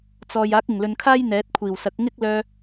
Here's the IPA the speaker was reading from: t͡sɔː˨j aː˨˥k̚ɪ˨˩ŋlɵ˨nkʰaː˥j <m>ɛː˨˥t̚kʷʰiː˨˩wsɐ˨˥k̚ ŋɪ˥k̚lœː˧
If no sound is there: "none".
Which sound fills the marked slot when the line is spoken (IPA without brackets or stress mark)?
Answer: n̪